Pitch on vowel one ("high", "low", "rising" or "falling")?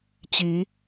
rising